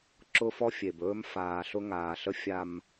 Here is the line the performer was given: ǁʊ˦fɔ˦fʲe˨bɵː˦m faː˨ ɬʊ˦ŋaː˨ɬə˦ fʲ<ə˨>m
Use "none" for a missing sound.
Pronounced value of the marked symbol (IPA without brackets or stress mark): a˨